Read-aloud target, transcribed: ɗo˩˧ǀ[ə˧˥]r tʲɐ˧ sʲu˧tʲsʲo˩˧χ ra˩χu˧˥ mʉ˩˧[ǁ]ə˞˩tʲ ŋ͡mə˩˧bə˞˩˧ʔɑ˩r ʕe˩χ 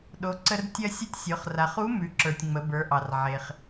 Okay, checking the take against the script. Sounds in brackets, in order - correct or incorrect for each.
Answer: incorrect: ə˧, correct

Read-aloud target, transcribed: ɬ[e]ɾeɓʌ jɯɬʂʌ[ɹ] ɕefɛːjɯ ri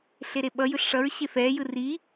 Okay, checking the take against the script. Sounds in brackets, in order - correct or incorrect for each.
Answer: correct, correct

